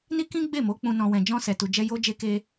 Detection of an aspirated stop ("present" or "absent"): absent